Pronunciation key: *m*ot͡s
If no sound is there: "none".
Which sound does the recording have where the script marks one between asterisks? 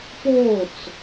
p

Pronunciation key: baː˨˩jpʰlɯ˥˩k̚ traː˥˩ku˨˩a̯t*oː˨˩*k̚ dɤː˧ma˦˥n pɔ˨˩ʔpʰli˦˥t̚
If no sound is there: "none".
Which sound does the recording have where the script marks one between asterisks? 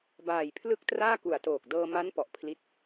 oː˨˩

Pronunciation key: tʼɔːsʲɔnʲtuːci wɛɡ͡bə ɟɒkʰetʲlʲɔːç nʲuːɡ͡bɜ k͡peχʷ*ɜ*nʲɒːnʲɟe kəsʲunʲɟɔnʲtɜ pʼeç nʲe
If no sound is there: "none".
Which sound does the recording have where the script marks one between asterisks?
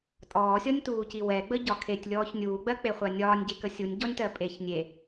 ɜ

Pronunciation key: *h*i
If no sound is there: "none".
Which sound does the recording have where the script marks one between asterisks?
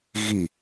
ɣ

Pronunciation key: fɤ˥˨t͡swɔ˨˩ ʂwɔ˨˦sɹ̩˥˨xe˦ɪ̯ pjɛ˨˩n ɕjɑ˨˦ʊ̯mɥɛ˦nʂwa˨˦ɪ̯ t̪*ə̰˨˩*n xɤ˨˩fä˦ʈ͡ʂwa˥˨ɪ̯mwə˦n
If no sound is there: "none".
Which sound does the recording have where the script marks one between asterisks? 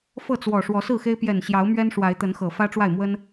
ə˨˦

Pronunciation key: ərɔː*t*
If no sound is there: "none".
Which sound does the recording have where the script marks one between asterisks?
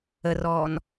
n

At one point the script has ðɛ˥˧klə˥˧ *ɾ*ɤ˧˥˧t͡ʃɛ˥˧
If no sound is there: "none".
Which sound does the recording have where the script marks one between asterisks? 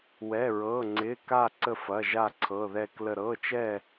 ɾ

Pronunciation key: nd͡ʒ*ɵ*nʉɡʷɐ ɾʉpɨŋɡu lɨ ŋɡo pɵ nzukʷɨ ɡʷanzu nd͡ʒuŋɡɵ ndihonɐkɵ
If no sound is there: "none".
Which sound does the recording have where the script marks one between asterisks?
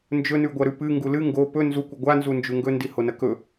ɵ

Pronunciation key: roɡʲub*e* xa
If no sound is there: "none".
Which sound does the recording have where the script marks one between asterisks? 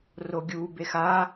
e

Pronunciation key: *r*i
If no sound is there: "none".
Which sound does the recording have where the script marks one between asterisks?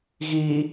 ɣ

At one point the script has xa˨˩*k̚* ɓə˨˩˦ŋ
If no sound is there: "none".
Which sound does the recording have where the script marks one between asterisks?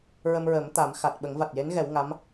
t̚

